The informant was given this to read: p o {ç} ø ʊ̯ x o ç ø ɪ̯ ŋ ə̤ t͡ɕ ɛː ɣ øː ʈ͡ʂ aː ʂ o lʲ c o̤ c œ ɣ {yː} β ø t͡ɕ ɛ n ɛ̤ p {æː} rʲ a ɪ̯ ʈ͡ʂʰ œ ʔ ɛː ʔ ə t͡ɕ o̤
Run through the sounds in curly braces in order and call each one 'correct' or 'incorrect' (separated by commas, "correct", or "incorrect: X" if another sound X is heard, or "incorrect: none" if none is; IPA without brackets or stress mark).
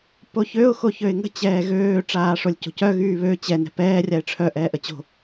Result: correct, correct, incorrect: ɛː